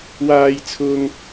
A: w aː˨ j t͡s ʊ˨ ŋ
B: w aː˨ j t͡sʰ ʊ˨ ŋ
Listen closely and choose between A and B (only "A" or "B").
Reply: B